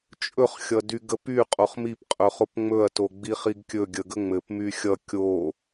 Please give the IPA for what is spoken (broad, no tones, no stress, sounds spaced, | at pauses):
t͡ʃʼ ɵ χ xʲ ʌ d y ɡ ə p y qʼ o χ m i p qʼ ɵ χ o p ŋ͡m ɵ ɐ̯ t o ɡ͡b i χ i ɡ kʲ ɵ ɡʲ ə ɡ ə ŋ͡m ɘ p m y xʲ ʌ kʲ o